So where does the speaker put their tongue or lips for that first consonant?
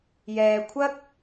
palate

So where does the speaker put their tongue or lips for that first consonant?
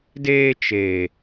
tongue tip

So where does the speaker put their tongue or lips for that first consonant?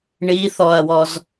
retroflex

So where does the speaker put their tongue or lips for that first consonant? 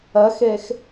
velum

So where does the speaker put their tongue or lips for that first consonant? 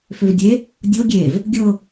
lips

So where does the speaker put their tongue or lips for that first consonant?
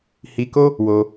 throat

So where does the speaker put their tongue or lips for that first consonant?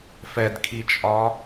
lips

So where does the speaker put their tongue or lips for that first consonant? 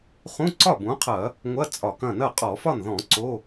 uvula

